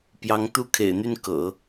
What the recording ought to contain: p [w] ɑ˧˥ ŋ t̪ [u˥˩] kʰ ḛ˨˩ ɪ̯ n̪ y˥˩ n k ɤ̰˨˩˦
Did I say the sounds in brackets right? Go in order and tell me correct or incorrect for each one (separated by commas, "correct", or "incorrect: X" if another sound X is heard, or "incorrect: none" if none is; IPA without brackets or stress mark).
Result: incorrect: j, correct